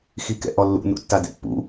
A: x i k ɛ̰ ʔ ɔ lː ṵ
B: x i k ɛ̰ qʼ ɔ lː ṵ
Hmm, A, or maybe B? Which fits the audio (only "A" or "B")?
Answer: A